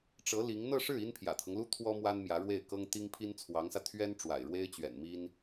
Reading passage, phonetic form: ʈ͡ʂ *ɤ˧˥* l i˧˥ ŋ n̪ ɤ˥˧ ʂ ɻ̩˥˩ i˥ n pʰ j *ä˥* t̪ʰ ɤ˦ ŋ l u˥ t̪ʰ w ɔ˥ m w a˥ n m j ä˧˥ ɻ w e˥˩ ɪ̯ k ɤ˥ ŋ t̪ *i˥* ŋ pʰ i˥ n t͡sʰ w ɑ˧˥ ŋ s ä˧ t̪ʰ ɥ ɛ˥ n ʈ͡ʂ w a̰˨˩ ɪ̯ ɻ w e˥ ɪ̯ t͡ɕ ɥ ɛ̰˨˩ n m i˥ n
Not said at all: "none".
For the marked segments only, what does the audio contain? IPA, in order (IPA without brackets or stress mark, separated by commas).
ɤ˧˥, ä̰˨˩, i˥